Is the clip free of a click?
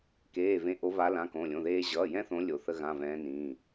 yes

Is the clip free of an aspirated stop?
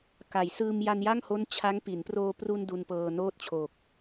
no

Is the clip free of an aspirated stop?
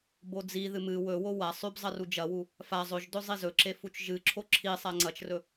no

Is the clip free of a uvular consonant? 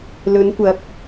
yes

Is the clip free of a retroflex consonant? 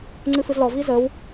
yes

